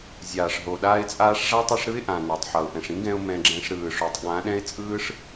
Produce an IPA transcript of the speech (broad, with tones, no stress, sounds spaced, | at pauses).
zʲ aː˨ ʂ ɦ o˨ ɗ aː˧ ɪ̯ t͡sʼ aː˧ ʂ ʐ a˦ tˤ ɯ˧ ʂ ɾ ɯ˦ ɪ̯ ʔ ã˨ n a˨ tˤ ħ ʌ˨ ʊ̯ ʔ ɛ̃˨ ʂ ĩ˦ ɡ ɛ̃˧ ʊ̯ m ɛ̃˧ ɡ͡ǁ ɛ̃˧ ʂ ɾ ɯː˨ ʂ o˨ tˤ ɠ ã˨˦ ɗ ɛ̃˦ ɪ̯ t͡sʼ ɯː˦ ʂ